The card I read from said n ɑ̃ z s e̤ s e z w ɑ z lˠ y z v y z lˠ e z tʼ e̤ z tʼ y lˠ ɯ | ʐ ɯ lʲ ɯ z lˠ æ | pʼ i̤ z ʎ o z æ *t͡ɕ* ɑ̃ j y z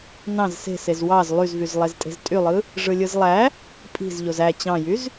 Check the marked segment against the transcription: correct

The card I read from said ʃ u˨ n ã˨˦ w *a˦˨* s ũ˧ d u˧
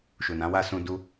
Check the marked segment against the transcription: correct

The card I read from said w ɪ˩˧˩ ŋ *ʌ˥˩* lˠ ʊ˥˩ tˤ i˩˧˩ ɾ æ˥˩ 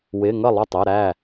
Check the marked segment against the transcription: correct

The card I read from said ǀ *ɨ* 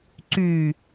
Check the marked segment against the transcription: incorrect: y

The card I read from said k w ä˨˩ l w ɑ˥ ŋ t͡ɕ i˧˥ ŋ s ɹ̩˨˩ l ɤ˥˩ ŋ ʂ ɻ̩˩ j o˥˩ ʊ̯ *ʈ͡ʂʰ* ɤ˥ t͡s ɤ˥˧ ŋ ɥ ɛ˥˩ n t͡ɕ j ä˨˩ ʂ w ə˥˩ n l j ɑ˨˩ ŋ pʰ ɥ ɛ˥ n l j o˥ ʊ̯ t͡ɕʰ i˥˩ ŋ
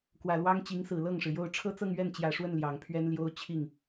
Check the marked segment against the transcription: correct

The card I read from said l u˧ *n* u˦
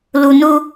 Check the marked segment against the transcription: correct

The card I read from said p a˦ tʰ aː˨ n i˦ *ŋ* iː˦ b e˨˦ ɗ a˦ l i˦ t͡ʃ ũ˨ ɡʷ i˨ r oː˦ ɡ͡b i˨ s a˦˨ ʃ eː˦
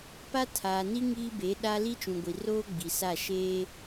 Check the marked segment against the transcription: correct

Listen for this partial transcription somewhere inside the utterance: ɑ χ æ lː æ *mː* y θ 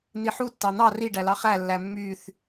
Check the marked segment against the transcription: correct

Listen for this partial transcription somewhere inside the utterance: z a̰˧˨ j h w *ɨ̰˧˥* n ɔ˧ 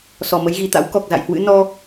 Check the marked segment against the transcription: correct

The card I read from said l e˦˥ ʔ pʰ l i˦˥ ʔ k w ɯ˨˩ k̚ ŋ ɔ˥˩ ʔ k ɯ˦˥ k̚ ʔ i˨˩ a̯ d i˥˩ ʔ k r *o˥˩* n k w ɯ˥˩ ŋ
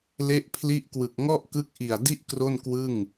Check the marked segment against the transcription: correct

